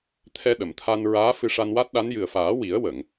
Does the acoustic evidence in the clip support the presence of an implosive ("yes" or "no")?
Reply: yes